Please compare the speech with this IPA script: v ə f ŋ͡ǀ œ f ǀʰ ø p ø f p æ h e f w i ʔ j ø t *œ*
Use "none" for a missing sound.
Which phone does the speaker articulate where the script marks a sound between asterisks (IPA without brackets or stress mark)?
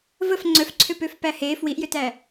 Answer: æ